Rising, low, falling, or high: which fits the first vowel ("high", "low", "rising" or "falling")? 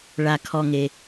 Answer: low